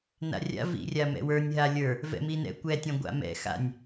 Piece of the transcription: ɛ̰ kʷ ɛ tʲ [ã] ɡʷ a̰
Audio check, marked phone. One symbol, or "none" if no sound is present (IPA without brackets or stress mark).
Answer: ã